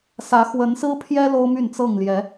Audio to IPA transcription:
sä˨˦ xwə˨˦nsɹ̩˦pʰjɛ˦ lo˦ʊ̯my˥˨nt͡sɤ˥˨ŋljɛ˨˦

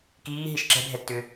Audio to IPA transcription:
kiːɦiʃ ǁɛ̤bʱɛtːʏ

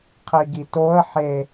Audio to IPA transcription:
qʰiɡitoə̯ ħe

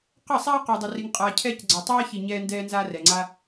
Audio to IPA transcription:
qə˦˨sˤaː˦ qɒ˧dˤə˧ ri˧ŋqʼaː˧cʰɛː˦c ɡ͡ǀɒ˨tˤaː˧çi˨ ɲɛː˧ndɛː˧nzaː˧ rɛ˨ŋ͡ǀa˧

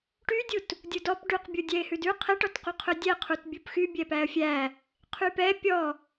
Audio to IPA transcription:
ʈydʲut | dʲudɔp ɖʉqbʲu dʲɛɪ̯hʉdʉ qʰɛʈɔtqu qʰɵdʲɛ qʰutbʲupxy bʲɛpæə̯fʲæ | qʰypɛ pʲɔ

